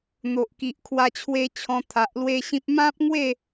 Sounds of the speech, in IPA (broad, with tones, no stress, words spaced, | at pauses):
n̪o˨ʔki˨ʔkʰwa˧t͡ɕʰwe˧ t͡ɕʰɔ̃˧t̪ʰa˨ʔlwe˦ɕĩ˦p̚ mã˦p̚ŋwe˥˧